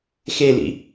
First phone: x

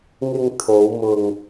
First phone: ŋ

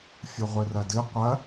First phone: fʲ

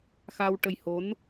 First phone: x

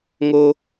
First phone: ŋ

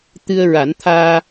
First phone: t̪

